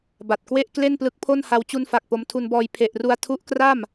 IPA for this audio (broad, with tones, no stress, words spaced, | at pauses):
ba˨˩t̚kwe˥˩ʔ kle˥˩nplɯ˦˥k̚pʰo˥˩nha˧w t͡ɕu˧nfa˨˩k̚ po˧mtʰu˧nbɔː˧j pʰe˨˩ʔru˧a̯ tʰu˦˥ʔkra˥˩m